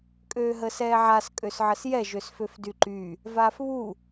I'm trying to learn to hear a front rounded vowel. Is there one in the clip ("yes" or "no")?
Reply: yes